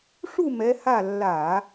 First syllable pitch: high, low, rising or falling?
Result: falling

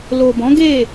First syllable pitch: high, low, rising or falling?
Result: low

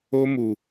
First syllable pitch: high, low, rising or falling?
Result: high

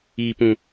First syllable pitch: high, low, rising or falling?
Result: low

